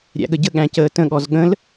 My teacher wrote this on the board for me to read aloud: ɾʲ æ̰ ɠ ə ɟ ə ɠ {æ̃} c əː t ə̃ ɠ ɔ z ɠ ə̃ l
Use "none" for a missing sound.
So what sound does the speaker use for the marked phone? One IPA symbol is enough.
æ̃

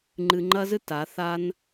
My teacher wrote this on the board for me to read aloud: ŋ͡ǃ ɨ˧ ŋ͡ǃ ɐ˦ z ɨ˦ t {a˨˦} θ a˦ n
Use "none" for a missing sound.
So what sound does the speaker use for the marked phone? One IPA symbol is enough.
a˨˦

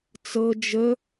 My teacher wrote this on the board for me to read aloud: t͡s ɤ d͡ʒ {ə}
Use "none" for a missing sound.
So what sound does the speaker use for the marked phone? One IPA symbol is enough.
ə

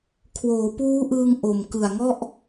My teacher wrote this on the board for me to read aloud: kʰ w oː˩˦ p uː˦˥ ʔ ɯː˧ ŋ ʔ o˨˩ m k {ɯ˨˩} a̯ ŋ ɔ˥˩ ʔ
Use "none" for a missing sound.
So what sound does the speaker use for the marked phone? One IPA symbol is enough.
ɯ˨˩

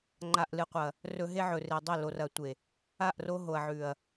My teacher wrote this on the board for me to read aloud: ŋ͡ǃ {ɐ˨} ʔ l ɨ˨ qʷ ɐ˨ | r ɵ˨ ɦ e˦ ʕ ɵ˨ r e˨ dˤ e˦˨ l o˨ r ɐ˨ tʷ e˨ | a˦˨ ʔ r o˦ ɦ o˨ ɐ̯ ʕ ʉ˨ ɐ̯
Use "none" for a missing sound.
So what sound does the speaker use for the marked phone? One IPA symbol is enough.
a˨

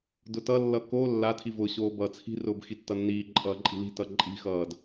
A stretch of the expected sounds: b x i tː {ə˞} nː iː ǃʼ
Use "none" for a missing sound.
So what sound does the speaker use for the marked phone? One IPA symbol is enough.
ʌ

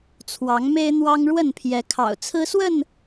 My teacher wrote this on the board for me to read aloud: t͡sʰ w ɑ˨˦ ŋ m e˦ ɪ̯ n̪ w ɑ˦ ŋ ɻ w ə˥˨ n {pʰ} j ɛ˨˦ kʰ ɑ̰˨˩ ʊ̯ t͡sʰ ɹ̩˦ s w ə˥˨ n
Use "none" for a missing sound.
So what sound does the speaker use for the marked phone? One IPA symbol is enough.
pʰ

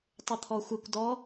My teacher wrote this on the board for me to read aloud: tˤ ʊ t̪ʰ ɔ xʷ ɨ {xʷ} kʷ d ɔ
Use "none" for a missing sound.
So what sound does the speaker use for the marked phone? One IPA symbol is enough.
none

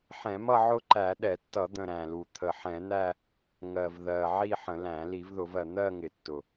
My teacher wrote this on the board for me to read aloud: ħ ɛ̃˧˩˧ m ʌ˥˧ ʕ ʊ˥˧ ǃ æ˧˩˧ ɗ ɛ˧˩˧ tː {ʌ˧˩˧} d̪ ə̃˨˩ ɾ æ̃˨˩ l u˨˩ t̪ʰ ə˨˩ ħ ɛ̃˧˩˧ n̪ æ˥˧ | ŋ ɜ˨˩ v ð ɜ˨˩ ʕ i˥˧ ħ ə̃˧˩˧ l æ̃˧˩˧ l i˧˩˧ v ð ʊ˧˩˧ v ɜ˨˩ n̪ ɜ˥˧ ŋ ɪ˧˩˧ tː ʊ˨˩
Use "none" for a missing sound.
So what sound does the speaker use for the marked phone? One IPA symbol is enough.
ʌ˧˩˧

